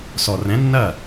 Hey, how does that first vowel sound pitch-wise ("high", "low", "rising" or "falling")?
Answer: low